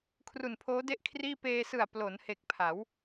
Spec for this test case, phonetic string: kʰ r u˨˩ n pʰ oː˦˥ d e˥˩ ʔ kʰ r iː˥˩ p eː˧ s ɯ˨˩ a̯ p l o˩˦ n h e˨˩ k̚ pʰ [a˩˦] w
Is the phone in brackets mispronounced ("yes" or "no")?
no